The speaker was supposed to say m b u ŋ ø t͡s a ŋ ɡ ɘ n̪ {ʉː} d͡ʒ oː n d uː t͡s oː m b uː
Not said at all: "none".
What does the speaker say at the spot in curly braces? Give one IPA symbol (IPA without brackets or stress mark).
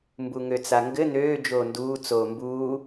øː